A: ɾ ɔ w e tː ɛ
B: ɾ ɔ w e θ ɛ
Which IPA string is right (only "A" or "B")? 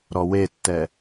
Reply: A